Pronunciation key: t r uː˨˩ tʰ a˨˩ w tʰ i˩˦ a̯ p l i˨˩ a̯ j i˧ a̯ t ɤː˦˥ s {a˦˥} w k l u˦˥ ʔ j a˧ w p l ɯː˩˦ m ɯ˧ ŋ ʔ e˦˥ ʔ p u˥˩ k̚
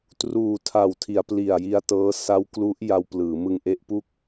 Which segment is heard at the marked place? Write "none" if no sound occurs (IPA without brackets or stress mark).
a˦˥